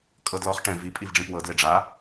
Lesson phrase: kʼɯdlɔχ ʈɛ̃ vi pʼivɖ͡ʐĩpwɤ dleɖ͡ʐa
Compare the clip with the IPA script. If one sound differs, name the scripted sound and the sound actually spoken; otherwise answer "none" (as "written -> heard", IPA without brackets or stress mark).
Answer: ɯ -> ɤ